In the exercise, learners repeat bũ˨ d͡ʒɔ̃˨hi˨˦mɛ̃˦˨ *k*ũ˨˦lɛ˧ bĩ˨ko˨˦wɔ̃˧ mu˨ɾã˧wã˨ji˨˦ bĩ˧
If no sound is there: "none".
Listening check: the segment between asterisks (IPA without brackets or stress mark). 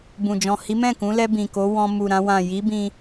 k